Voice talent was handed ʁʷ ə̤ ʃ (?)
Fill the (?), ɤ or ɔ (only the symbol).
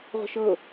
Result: ɤ